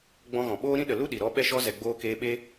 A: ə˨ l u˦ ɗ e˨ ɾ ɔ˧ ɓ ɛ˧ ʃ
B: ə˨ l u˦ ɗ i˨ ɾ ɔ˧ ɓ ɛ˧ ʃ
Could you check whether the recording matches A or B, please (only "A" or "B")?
B